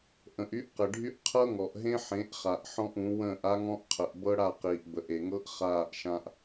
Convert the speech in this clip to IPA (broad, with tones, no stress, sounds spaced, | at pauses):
ʔ ə̃˨ ʔ y˦ ʔ q ɘ˨ ɖʱ y˦ ʔ qʰ ɤ˦ ŋ ɔ˨ ʔ ɦ ẽ˦ ħ ẽ˨˦ ʔ χ a˨ ʔ ħ ɔ̃˦ ʔ ũ˨˦ w ə̃ː˦˨ ʔ a˦ ŋ ɔ̃˦ ʔ qʰ ə˨ ʔ b ɤ˦ ɽ a˦˨ q iː˨ ʔ b ə˨ ʔ e˨ ŋ ɤ˦ ʔ χ aː˦˨ ʔ ʃ ã˦ ʔ